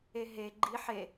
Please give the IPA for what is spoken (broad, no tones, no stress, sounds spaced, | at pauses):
e ɦ e ɡ͡ǃ i ħ e